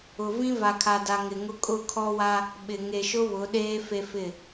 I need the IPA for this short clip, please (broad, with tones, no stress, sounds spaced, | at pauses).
ʊ˨ v ĩ˦ v a˨ kʰ a˨ d a˨ ŋ ɪ˨ ŋ ʊ˦ kʼ ʊ˦˨ kʰ ɔ˦ w a˦ | ɓ ɪ˨ ŋ e˨ ʃ ʊ˦ β ʊ˨˦ ɗ eː˦ f e˦ f ɪ˦˨